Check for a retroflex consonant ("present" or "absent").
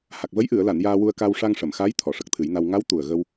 present